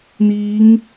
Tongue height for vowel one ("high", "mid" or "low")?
high